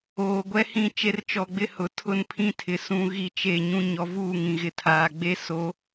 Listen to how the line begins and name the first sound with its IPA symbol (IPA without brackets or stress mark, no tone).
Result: oː